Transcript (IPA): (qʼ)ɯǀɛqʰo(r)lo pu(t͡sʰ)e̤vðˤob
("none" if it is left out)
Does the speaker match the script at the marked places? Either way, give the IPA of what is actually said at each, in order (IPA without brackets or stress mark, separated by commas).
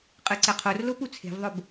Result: qʼ, r, t͡sʰ